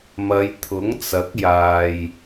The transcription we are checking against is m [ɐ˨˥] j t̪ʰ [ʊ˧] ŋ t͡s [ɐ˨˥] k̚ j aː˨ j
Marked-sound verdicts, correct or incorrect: incorrect: ɐ˨˧, incorrect: ʊ˨˥, correct

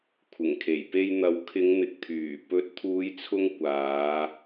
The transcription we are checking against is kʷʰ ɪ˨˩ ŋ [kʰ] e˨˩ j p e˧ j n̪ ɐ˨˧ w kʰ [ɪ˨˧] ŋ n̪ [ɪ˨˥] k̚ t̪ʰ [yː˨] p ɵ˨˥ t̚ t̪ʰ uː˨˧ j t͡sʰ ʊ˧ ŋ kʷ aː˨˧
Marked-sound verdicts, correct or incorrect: correct, correct, incorrect: ɪ˨, incorrect: yː˨˩

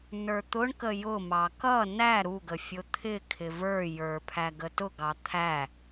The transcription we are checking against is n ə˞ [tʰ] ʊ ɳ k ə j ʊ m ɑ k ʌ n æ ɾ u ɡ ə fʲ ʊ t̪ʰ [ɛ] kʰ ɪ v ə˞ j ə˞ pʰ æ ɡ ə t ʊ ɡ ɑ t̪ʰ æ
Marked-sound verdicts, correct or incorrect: incorrect: t̪, incorrect: ɪ

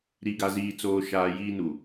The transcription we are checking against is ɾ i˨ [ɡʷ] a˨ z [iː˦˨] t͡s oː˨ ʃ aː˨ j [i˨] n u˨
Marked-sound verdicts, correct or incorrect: incorrect: ɡ, incorrect: iː˨, incorrect: iː˨

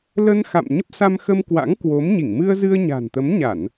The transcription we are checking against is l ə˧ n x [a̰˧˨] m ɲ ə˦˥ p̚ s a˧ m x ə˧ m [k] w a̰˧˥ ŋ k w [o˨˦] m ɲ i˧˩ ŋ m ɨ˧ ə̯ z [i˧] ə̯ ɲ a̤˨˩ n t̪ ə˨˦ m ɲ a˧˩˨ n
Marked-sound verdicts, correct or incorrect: correct, correct, correct, incorrect: ɨ˧

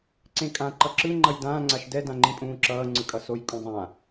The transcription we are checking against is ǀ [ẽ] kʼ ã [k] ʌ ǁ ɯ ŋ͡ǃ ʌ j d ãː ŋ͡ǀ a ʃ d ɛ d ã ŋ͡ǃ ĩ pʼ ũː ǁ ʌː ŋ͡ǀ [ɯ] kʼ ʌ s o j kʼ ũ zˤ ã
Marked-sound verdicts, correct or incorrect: correct, incorrect: ǃ, correct

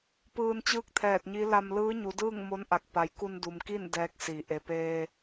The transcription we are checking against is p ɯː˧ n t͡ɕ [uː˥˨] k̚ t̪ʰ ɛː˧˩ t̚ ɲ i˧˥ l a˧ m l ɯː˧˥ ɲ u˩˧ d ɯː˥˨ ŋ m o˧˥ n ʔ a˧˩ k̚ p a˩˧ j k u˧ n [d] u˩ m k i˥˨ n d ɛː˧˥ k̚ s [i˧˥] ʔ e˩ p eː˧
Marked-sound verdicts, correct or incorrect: incorrect: ɯː˥˨, correct, incorrect: i˩˧

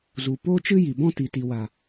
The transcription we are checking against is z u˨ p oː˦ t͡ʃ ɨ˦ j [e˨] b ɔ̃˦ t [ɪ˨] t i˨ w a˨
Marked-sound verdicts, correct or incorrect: incorrect: i˨, incorrect: i˨

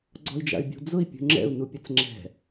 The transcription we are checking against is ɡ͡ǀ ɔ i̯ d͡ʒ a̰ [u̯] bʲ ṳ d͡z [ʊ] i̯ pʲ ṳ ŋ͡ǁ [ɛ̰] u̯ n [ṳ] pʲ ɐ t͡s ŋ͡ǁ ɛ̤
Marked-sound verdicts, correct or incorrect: incorrect: y̯, correct, correct, incorrect: u

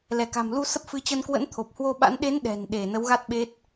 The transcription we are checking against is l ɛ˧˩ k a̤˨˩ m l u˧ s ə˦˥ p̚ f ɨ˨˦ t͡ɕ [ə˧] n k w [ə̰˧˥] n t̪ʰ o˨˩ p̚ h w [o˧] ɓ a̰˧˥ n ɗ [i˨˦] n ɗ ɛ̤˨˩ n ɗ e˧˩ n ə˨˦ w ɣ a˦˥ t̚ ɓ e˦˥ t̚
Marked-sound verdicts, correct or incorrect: correct, correct, correct, incorrect: e˨˦

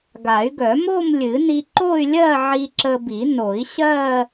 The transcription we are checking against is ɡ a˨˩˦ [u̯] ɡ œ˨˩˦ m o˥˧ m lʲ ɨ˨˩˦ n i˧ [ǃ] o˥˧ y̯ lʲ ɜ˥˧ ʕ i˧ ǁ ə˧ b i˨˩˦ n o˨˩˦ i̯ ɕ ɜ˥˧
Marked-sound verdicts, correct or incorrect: incorrect: y̯, correct

